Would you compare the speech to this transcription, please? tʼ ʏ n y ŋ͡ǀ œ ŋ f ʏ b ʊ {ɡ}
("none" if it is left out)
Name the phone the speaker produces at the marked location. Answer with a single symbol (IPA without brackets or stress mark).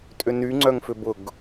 ɡ